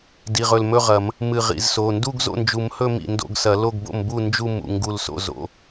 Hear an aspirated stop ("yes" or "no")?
no